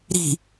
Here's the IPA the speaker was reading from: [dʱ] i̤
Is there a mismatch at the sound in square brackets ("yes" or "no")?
yes